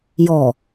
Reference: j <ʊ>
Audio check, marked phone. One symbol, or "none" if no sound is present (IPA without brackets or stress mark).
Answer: ɔ